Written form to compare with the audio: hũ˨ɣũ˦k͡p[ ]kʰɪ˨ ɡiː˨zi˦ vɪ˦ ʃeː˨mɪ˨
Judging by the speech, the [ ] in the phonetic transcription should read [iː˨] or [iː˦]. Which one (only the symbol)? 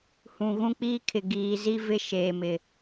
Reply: iː˦